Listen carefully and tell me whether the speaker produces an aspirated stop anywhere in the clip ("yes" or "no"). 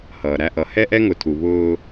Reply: yes